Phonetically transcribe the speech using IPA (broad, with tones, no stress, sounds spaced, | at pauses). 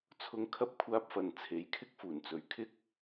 t͡sʰ ʊ˥ ŋ kʰ ɐ˥ p̚ kʷʰ aː˥ p̚ f ɐ˧ n t͡sʰ e˨˥ j kʰ ɪ˥ k̚ f uː˨˩ n t͡s ɵ˨ ɥ kʰ ɪ˥ k̚